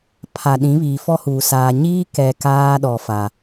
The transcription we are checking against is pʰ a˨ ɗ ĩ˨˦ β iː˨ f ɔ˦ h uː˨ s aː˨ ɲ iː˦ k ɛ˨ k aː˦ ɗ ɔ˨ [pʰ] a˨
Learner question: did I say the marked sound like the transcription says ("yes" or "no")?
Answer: no